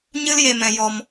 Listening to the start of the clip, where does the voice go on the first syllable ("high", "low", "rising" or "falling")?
high